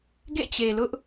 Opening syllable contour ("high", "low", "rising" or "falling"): falling